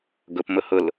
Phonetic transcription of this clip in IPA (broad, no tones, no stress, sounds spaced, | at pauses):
ɡ ʊ p m ʊ h ʊ l